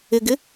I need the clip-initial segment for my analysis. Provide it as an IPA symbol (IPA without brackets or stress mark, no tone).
ɪ